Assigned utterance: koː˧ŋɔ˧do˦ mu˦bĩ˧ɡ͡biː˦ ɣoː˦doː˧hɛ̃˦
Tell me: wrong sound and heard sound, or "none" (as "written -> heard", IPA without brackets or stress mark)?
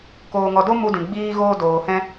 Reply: b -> d